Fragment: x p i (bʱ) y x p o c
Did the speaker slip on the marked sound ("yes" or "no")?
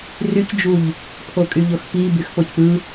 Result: yes